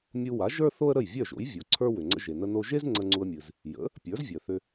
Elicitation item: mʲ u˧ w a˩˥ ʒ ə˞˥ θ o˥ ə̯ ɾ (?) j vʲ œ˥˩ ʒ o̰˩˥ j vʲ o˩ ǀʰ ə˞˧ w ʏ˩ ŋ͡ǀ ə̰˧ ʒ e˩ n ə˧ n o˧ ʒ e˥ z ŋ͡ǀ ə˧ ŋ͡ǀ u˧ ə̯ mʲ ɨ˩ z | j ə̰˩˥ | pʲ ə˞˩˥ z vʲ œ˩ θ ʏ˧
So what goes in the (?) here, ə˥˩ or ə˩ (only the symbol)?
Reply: ə˥˩